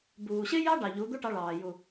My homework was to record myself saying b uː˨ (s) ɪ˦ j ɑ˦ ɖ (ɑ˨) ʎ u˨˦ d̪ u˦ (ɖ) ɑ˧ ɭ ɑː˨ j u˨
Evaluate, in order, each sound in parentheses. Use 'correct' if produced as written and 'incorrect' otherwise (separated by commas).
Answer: incorrect, correct, incorrect